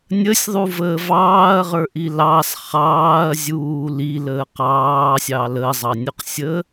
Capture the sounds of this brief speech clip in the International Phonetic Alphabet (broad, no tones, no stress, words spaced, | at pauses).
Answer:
nʲəsʲðˤuvəːv ɑːɐ̯ʁə˞ʔi lɑs χɑːɐ̯zʲuː liləː qɑːsʲɑ ləzˤɑnʲoqsʲəː